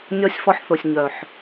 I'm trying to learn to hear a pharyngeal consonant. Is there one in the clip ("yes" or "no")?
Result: yes